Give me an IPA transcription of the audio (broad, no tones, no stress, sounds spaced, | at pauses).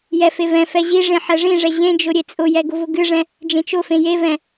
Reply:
j ɛ f e v ɛ̃ f ɛ ʑ i ʐ ẽ ħ ɛ ʐ ĩ ʐ ɛ ʑ ẽ d͡ʒ ʊ ɾʲ e t͡sʼ ʊ j ɛ ɡ ʊ v ʊ ɡ ɨ ʐ ɛ̃ | d͡ʒ ẽ t͡ʃ ʊ f ẽ j e v ɛ̃